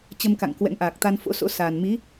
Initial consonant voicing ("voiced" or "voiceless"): voiceless